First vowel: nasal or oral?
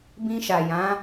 nasal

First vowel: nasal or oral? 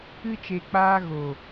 oral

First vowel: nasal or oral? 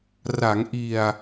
oral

